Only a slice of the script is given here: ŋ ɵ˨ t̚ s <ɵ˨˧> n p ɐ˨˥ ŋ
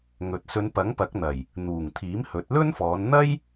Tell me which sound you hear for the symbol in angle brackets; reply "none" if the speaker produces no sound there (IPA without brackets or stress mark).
ɵ˨˧